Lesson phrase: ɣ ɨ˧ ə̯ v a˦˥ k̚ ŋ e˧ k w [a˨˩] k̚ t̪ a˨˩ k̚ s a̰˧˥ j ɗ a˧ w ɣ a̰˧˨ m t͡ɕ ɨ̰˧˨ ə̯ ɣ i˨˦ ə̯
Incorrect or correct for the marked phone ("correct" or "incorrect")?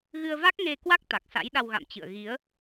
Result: incorrect